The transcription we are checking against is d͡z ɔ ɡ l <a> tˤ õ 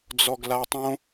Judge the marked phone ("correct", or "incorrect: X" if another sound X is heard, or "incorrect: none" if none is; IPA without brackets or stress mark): correct